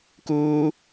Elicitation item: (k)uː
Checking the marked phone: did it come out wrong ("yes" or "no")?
no